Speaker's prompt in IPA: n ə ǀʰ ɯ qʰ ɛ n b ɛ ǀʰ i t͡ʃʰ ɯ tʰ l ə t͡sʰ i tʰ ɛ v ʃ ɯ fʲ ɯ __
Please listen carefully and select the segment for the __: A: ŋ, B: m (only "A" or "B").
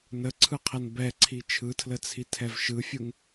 A